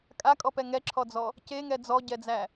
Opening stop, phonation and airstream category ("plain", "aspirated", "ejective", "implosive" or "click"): ejective